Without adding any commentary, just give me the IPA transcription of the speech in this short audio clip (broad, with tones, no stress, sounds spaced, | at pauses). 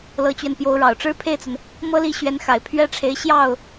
l ɤ˧˥ t͡ɕ ɥ ɛ˧ n p j o˧˥ ʊ̯ ɻ ɑ˨˩ ʊ̯ ʈ͡ʂ ɻ̩˥ pʰ e˥˩ ɪ̯ t͡s ə˩ n | m ɤ˥ l i˥˩ ɕ ɥ ɛ˧˥ n x a˨˩ ɪ̯ pʰ ɥ ɛ˥ ʈ͡ʂʰ e˧˥ ɪ̯ ɕ j ɑ˥˩ ʊ̯